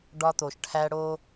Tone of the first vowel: high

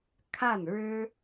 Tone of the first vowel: falling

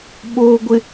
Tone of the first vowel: low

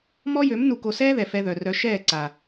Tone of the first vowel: high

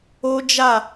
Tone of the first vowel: high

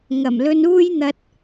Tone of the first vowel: low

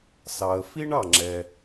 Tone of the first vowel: low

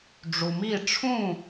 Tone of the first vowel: low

